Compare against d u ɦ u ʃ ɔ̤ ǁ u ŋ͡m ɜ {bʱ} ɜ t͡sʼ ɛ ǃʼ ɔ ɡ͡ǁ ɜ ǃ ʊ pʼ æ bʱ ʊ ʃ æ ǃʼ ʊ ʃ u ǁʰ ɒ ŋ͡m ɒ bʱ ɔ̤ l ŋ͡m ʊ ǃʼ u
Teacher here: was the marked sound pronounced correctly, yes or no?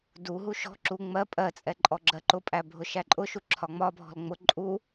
no